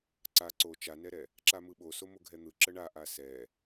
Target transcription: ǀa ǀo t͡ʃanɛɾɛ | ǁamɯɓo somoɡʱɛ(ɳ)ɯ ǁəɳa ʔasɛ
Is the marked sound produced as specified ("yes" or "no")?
no